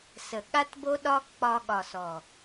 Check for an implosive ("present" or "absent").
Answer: present